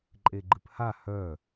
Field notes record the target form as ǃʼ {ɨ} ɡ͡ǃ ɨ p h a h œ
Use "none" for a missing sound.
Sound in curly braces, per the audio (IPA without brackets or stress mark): e